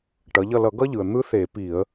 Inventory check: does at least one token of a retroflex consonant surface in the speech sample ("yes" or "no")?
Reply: yes